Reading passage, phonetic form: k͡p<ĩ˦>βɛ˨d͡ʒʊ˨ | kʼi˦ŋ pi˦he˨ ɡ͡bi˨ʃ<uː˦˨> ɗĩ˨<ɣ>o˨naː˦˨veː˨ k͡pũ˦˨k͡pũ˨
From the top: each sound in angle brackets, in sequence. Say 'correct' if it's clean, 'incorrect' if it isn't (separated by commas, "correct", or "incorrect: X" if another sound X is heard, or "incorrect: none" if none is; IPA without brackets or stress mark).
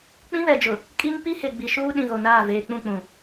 correct, incorrect: uː˦, correct